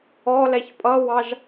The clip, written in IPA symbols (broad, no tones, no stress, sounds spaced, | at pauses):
ɔ l ɛ ç pʼ ʌ w ɑ ʒ